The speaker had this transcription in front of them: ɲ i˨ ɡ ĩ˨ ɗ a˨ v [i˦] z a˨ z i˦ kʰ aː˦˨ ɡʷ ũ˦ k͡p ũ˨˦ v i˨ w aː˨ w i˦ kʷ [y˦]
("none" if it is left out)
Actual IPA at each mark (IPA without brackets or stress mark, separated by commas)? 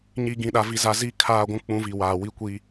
i˨, i˦